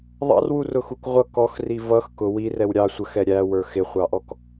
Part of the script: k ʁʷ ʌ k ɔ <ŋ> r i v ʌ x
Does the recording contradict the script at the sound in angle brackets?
yes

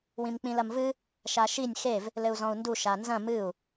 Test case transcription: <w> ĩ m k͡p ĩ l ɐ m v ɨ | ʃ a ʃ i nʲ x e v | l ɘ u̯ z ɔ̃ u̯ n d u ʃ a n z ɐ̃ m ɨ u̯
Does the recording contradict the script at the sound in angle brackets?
no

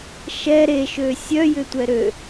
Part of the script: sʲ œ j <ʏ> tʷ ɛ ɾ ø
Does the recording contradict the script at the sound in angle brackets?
no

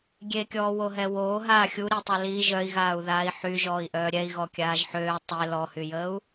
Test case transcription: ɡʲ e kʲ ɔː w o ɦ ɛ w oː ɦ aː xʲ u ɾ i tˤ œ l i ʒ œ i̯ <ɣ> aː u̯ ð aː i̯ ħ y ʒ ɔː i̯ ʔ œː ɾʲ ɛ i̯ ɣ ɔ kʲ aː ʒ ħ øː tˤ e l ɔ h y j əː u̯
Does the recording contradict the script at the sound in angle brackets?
no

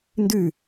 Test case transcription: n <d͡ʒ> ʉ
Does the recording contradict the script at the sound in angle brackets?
yes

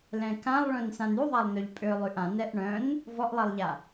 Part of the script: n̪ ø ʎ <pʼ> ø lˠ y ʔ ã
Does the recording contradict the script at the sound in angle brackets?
no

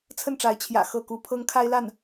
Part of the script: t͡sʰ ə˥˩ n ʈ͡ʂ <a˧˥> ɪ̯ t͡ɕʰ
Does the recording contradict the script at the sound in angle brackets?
no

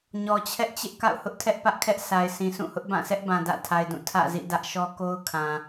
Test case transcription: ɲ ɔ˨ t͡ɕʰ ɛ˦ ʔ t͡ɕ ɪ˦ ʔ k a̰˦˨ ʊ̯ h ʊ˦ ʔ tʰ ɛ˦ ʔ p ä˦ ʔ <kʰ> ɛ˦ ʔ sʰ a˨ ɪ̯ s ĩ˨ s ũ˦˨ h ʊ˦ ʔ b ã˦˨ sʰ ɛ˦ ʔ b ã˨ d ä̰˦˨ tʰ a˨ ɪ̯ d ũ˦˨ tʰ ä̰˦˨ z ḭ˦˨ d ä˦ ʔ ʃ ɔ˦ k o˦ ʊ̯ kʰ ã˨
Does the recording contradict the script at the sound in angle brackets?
no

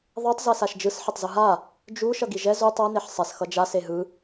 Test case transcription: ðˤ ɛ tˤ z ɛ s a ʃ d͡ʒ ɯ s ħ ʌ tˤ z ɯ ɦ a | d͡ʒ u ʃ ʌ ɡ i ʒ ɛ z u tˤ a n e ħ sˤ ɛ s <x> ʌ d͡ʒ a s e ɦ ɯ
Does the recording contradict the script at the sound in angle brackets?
no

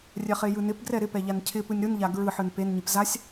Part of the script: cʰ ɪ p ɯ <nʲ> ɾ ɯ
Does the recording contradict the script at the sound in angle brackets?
no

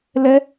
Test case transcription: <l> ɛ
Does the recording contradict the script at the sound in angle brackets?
no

